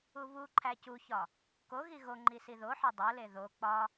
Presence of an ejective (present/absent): absent